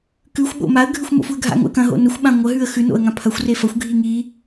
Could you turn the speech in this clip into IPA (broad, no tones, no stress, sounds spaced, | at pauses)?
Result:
k ʉ xʷ ɓ o̰ m a ə̯ ɡʱ ʉ xʷ m o̰ f u ə̯ ɡʱ a̰ ŋ o̰ ə̯ k ɐ̃ ɦ o̰ n ɵ xʷ ɓ ã ŋʷ ɐ ɦ ʉ ə̯ x ʉ n o̰ ə̯ ŋ ã pʰ ɐ xʷ r e f ɐ xʷ ɡʱ i ŋ i